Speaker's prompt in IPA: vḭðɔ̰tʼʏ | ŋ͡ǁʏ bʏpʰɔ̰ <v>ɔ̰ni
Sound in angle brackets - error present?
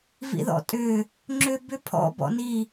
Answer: yes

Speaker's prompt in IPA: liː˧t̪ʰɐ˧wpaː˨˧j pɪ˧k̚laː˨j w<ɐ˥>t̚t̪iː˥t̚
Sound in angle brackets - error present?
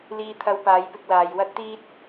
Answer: no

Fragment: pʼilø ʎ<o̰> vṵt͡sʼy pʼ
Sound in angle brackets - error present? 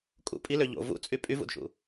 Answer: no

